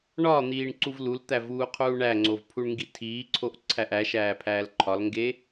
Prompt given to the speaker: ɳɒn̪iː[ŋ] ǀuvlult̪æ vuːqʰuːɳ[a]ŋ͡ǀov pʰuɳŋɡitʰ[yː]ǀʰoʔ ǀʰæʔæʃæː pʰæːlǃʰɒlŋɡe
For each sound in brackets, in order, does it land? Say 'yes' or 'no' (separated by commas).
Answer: no, no, no